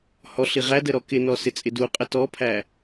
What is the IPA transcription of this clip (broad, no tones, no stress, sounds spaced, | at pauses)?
h ɔ ɬ i ʁ æ d ə ɾ ɔ k ɪ n ɔ s ɪ t͡sʼ ɪ d u qʼ ə t ɔ pʰ æ